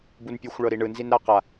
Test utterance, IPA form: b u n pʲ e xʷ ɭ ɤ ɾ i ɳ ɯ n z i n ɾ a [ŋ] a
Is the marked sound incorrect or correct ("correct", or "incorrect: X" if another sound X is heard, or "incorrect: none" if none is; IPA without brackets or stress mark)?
incorrect: q